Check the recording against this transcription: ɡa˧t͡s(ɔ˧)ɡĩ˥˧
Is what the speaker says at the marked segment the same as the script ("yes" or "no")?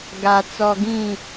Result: yes